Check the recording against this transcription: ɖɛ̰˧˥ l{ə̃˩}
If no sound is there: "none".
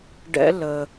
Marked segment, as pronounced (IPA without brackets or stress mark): ə˩